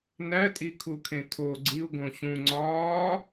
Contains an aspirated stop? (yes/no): yes